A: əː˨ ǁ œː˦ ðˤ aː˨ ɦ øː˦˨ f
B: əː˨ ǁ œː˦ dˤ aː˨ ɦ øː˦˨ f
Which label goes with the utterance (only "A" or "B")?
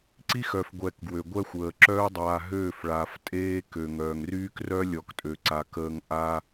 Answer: B